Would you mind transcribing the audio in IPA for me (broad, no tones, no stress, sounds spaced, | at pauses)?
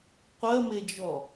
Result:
qʷ ɜ m e d͡ʒ ɔ